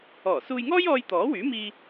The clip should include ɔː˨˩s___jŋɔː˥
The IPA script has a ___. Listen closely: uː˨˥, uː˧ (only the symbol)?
uː˧